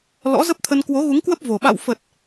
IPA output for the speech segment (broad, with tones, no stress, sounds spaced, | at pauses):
l ɔ̰˧˥ z ə˦˥ p̚ t̪ʰ ə˧ n k w o˨˦ ɣ u˨˦ ŋ k w ə˦˥ p̚ v o˨˩ ɓ a̰˧˨ w f ə˨˩ t̚